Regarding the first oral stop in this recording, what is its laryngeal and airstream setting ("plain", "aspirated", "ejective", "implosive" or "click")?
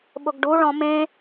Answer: implosive